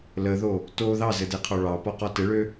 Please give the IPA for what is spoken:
l ə ð o | t o ð ɑ z ɘ d e qʰ ɒ ɭ ɑ p ɒ q ɒ t ɘ ɭ ø

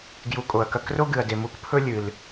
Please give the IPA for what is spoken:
ɡ j u˨ kʼ o˩ ɐ̯ k ɐ˨ k r o˦ ɡ ɨ˩ ɐ̯ d e˩ m u˨ k pʰ ɵ˦ lʲ ɨ˩ l

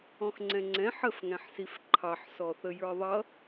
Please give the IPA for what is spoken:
ɔ̃ x ŋ͡ǀ ɛ̃ ŋ͡ǀ ɛ̃ ħ ə f ŋ æ̃ ħ s i f ǃʰ ɑ ħ s ɔ θ ə j ə˞ ðˤ ʌ

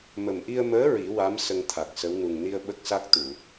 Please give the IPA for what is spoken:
m ə˨˩ m ʔ i˧ ə̯ m əː˧˥ ɹ i˨˩˦ w a˧˥ m s ə˧ ŋ t̪ʰ a˨˩ k̚ s ə˧˥ w n u˨˩ ŋ n i˧ ə̯ ɓ ə˦˥ k̚ s a˦˥ k̚ t̪ u˨˩˨

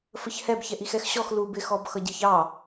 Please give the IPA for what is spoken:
f ə ç h ɛ b ç ɛ ʔ i x ɛ x ɕ ɔ x l u b ɪ x ɔ b x ʌ ɟ i ç ɑ

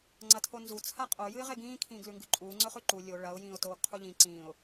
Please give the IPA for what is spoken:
ŋ͡ǀ ɐ tʰ o n z u t͡sʰ a qʼ o j ɨ ɪ̯ ʁ e ɡ ĩː kʰ ĩː ɡ l ʉ ŋ ɡ ʉ ǃʼ uː ŋ͡ǀ ɵ χ ʉ ǃ u lʲ o ɭ ɐ ʊ̯ j ĩː ʊ̯ t oː ɡ qʰ u ʎ ĩ ǀ ĩː ʊ̯

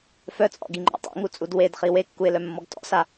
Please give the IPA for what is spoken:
f œ t͡sʼ ɔ̰ ɡ i ŋ͡ǃ ɔ̰ tˤ ɛ̰ ŋ u t͡sʼ u d w e d χ i w e kː u ɪ̯ l œ mː ɔ ɡ t ɔ̰ s a

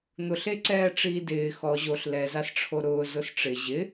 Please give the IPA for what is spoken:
n̪ ʊ ɬ e ǀ ɛː ʈ͡ʂ iː d ɪː x ɔ ʑ o ɬ l ɛ z a s ʈ͡ʂʰ o ɾ ʊː z ʊ s ʈ͡ʂ ɪ ʑ ɪ

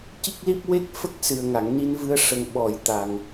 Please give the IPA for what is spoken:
c i˦˥ k̚ l i˦˥ p̚ w e˦˥ k̚ f ə˦˥ k̚ s ɨ˨˩ ə̯ ŋ a˨˩˨ ŋ n i˧ n v ɨ˧ ə̯ ʂ ə˨˩ ŋ ɓ ɔ˨˩˨ j t̪ a˨˩ ŋ

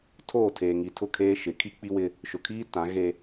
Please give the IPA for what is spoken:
tʰ oː˦˨ tʰ eː˨ ŋ i˨ tʰ ʊ˦˨ kʰ eː˦ ʃ ɪ˨˦ kʰ i˦ k͡p i˦ w ɪ˦ | ʃ ʊ˨ kʰ iː˦ t ã˨˦ ɣ e˦

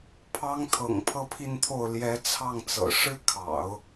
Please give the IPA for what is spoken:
pʰ ɑ˧˥ ŋ t̪ʰ ɤ̰˨˩ ŋ pʰ ɤ˥˧ pʰ i˥˧ n t̪ʰ o˥˩ ʊ̯ l j ɛ˧˥ t͡sʰ ɑ˥˩ ŋ t͡s ɤ̰˨˩ ʂ ɻ̩˥ kʰ ɑ̰˨˩˦ ʊ̯

